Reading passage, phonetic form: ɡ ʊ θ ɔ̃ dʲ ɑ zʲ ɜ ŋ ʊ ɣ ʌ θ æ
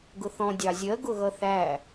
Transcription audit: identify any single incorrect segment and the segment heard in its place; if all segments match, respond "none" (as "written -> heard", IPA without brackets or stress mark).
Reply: ŋ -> ɡ